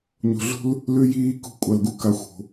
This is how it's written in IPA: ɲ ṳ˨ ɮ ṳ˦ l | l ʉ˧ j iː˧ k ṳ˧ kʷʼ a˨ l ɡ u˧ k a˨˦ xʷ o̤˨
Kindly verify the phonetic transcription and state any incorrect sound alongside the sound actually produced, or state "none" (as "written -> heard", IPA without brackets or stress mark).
none